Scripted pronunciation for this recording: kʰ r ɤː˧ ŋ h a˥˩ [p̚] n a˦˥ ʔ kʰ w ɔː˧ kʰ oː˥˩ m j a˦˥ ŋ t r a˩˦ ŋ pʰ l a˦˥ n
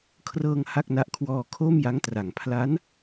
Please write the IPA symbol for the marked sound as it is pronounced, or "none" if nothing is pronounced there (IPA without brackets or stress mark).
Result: k̚